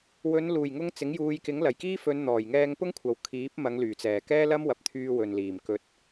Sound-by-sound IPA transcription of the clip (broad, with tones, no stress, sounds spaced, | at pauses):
w ɵ˨˧ n l uː˨˩ j ŋ ʊ˧ ŋ t͡s ɪ˨˥ ŋ j uː˨˧ j k ɪ˨˥ ŋ l ɐ˨˩ j k iː˥ f ɵ˨˧ n n̪ ɔː˨˩ j ŋ ɛː˧ ŋ p ʊ˥ ŋ kʷʰ ɐ˨ w kʰ iː˨˥ p̚ m ɐ˨˧ ŋ l yː˨˩ t͡s ɛː˨˩ k ɛː˥ l ɐ˥ m w ɐ˨˥ p̚ t̪ʰ yː˧ w ɵ˨ n l iː˨˩ m k ɵ˧ t̚